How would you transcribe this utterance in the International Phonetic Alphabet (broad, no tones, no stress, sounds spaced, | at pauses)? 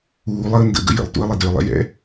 uː lˠ əː n d ə̰ ɡ ə̰ j ə̰ lˠ t ṵ ə̯ lˠ ɪ d ø lˠ ɛ̰ j ɛ̰